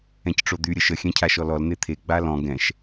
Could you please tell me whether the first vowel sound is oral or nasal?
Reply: nasal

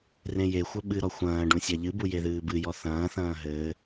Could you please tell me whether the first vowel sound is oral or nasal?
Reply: nasal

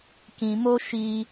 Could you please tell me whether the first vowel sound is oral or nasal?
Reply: nasal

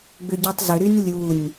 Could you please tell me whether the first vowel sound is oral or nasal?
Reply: oral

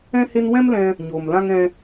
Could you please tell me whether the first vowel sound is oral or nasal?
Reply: nasal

